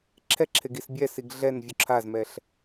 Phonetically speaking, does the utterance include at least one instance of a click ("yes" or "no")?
yes